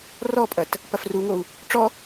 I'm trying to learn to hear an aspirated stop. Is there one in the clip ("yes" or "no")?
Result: no